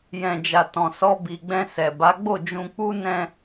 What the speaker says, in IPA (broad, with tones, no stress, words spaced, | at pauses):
jɛ̃˨d͡ʒa˨ tɔ̃˨sɔ˧bi˨ɡ͡bɛ̃˧ sɛ˨ba˨˦ ɡ͡bo˦˨d͡ʒũ˧k͡pu˦ nɛ̃˦